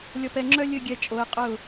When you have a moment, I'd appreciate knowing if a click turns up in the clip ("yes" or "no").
yes